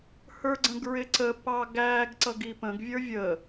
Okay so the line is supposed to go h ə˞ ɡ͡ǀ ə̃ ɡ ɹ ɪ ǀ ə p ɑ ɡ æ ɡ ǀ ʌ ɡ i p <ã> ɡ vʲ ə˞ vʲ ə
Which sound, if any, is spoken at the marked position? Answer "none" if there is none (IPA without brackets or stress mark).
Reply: ə̃